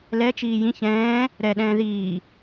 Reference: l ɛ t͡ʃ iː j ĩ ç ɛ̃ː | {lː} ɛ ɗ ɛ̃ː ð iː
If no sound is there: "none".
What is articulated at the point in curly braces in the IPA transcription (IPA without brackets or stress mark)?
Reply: ɾ